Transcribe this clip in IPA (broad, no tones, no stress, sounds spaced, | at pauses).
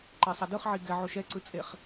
ǃ ɛ sˤ a d ɯ χ ʕ i ɡ ɛ ʕ o ʃ ɛ ǀ ɯ t͡sʼ e χ